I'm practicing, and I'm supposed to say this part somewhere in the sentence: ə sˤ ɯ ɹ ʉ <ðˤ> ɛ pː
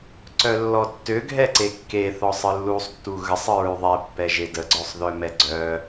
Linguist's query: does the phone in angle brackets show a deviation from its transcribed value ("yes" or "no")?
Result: no